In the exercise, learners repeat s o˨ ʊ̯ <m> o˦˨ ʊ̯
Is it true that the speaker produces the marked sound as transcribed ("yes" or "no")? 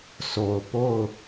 no